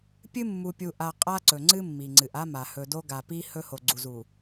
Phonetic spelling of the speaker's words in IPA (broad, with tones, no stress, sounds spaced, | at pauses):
pʲ ɨ˦ mː u˨ pʲ u˨ ʔ a˨ qʼ a˦ ǀ ɵ˨ ŋ͡ǀ ɨ˦ mː i˨ ŋ͡ǀ ɨ˨ ʔ a˦ m a˨ h ɵ˨ d o˦ ɡ a˨ p i˦ h ɵ˦ h o˨ ɡ͡ǀ u˨ z u˨